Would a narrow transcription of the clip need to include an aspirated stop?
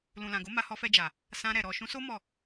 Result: no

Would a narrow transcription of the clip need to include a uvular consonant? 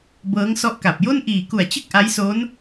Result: no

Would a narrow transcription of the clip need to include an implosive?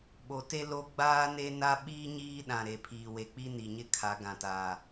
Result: yes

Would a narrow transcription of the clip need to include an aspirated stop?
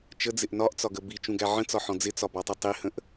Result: no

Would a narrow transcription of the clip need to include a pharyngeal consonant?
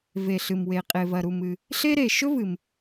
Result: no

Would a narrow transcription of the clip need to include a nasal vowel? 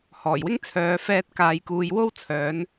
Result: no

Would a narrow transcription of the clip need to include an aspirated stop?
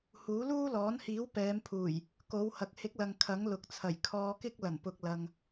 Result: yes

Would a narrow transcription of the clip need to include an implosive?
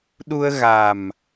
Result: yes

